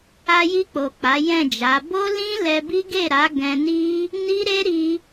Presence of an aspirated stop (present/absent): absent